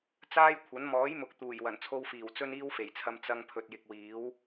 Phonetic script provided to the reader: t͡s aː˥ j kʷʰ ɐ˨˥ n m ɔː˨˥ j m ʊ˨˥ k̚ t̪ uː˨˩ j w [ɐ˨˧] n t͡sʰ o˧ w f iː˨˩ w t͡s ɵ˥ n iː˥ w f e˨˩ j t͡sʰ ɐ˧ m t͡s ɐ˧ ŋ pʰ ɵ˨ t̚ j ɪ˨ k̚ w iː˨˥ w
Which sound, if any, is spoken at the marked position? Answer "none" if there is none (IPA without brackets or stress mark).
ɐ˨˩